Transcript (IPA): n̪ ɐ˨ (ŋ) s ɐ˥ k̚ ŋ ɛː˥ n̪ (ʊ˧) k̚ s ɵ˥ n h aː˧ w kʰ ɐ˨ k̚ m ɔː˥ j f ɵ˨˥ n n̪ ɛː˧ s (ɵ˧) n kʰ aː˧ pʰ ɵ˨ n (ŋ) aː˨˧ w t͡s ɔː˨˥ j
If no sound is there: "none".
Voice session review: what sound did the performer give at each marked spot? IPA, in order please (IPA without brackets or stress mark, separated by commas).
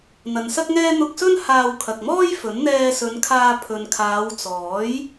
n, ʊ˧, ɵ˨˧, kʰ